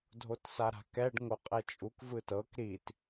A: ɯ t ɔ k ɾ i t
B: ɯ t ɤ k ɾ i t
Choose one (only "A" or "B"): B